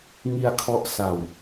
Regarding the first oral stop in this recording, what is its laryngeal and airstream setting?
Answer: aspirated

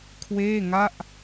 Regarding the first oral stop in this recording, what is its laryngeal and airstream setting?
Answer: aspirated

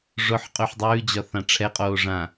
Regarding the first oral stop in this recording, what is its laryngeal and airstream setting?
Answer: ejective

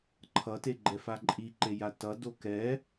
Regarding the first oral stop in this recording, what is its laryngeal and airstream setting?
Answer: click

